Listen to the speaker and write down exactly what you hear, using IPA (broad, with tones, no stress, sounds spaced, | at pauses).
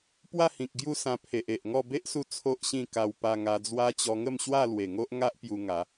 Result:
p w a˥˧ h ĩ˨ k̚ ɡ j u˥˧ s ã˧ pʰ e˨ ʔ e˨ ʔ ŋ ɔ˥˧ b e˦ ʔ s u˧ t͡sʰ o˦ ʔ ɕ ĩ˥˧ k a˧ w p a˧ ŋ a˧ d͡z w a˦ t͡ɕ ɔ˧ ŋ ə˥˧ m ɕ w a˥˧ l w e˨˩ ŋ o˦ ʔ ŋ a˦ ʔ p j u˧ ŋ a˨˦